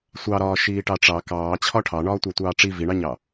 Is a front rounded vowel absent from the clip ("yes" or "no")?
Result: yes